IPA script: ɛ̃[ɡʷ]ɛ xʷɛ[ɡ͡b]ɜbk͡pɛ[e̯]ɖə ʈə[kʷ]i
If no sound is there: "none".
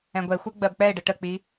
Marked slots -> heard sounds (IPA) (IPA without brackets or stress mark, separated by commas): ɡʷ, ɡ͡b, e̯, k͡p